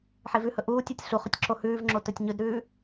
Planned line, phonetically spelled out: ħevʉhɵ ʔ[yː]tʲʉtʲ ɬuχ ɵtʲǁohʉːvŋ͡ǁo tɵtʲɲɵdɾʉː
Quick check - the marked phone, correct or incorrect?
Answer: incorrect